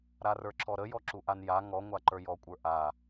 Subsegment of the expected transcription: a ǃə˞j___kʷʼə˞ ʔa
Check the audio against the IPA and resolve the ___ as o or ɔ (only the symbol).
ɔ